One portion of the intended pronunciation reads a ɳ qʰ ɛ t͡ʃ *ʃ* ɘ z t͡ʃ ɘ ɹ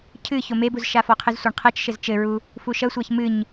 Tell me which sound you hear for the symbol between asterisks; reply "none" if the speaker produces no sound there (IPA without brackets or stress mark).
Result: ʃ